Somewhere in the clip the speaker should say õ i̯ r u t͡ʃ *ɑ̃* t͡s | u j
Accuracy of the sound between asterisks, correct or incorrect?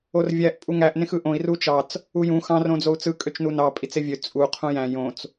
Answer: incorrect